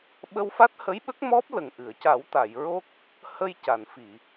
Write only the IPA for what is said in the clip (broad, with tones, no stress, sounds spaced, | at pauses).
ɓ ə˧ w f a˦˥ t̚ h ə˧˥ j ɓ ə˦˥ k̚ m ɔ˦˥ p̚ l ə˨˩ ŋ ʔ ɨ˨˩˨ ə̯ c a˨˩˦ w t̪ a˨˩˨ j ɹ o˦˥ k̚ | h ə˧ j c a˨˩˨ n f i˨˩˨